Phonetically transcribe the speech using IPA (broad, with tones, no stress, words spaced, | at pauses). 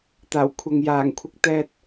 t̪aː˨˩wkʷʰɐ˨ŋ jaː˨˩ŋ kʷʰɪ˧k̚ t̪ɛː˧t̚